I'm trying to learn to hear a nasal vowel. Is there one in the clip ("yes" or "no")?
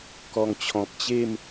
yes